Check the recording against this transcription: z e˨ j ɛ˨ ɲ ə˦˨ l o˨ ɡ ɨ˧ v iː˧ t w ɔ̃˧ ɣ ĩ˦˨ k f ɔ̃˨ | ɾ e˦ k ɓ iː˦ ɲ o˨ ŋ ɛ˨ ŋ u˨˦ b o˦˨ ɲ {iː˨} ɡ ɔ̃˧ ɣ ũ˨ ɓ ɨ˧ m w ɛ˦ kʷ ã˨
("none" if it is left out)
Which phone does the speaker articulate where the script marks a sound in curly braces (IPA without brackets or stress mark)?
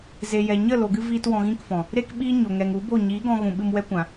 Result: iː˨˦